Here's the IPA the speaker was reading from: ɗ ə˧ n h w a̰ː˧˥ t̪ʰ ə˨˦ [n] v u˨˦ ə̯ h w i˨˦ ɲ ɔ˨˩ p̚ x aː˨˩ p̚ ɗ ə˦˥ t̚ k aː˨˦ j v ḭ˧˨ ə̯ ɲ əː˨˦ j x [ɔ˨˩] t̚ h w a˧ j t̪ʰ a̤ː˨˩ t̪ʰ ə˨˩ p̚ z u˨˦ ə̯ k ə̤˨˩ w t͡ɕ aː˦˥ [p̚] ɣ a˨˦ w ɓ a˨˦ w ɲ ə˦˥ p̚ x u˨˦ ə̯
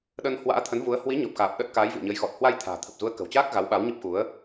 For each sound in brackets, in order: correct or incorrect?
correct, correct, incorrect: k̚

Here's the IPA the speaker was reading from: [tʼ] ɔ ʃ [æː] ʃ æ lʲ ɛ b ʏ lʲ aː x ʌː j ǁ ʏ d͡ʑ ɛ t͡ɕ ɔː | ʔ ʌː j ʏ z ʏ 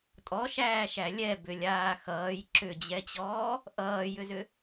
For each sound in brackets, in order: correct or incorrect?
correct, correct

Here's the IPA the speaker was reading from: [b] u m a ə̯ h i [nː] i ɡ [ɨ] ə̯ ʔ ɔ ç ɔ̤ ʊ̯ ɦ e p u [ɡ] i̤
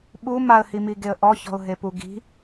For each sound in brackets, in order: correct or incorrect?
incorrect: ɓ, incorrect: m, incorrect: e, correct

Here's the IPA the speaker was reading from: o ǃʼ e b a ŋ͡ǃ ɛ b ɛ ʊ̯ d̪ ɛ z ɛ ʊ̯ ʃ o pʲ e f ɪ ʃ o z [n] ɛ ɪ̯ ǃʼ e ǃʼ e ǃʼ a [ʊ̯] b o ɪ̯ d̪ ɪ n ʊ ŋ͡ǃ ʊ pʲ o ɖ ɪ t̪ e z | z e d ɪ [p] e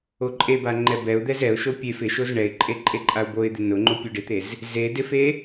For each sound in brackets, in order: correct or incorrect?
incorrect: ɳ, correct, incorrect: f

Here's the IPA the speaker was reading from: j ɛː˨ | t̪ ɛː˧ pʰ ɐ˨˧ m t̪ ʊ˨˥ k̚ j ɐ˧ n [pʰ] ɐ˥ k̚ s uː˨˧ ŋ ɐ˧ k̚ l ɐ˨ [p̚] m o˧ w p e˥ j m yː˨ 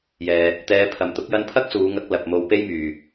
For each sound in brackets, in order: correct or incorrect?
correct, correct

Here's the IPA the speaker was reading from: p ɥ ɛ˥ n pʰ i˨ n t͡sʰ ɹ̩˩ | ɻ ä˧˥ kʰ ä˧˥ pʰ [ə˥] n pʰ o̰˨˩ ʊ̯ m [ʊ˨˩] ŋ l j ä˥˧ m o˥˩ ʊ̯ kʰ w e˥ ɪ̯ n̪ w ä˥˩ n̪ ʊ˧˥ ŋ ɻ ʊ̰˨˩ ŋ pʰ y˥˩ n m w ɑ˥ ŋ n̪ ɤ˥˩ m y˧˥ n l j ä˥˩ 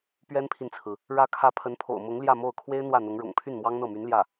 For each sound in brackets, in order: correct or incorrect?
incorrect: ə˧˥, incorrect: ʊ˧˥

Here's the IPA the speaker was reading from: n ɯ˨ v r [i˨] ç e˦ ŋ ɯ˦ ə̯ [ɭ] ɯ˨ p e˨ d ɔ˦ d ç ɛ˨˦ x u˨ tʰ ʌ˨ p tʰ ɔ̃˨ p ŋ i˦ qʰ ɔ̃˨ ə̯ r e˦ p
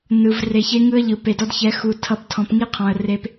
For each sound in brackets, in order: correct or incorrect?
incorrect: e˨, incorrect: ʎ

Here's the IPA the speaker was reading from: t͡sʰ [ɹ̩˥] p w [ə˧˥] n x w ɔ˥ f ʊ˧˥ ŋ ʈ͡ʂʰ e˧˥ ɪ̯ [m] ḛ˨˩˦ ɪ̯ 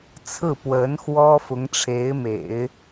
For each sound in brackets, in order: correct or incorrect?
incorrect: ɹ̩˥˩, correct, correct

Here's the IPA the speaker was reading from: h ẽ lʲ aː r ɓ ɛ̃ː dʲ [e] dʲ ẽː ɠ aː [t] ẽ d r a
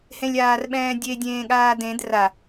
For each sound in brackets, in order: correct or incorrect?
correct, incorrect: d

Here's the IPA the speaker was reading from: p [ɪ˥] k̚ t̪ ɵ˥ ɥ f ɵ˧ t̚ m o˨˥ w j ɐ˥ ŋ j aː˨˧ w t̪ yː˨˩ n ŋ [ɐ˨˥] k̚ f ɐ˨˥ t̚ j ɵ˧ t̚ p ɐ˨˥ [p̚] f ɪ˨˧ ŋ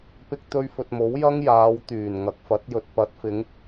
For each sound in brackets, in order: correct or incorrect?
correct, correct, incorrect: t̚

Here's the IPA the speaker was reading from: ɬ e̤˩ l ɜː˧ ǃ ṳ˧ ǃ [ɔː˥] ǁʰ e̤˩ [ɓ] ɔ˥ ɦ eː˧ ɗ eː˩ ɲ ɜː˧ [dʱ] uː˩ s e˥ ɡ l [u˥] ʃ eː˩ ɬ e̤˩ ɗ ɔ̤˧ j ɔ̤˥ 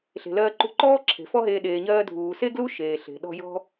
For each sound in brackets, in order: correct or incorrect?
correct, incorrect: f, correct, correct

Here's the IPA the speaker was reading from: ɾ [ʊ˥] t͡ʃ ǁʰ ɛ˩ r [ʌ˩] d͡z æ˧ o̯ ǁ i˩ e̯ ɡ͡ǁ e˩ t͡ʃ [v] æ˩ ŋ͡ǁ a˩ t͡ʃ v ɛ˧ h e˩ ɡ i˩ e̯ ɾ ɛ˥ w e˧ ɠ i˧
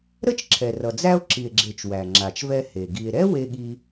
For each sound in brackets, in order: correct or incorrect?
incorrect: ə˥, correct, incorrect: w

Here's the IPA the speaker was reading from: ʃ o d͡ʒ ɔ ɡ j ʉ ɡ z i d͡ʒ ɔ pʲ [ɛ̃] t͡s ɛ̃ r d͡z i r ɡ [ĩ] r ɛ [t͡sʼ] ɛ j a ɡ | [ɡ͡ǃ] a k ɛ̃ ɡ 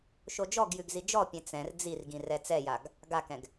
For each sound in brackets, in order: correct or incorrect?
correct, correct, incorrect: t͡s, incorrect: ɡ

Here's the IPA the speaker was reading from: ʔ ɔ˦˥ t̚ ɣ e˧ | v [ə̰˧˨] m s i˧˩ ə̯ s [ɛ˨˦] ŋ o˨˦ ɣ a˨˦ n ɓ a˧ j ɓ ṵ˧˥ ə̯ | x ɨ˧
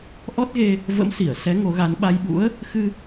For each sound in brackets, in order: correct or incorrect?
incorrect: ə̰˧˥, correct

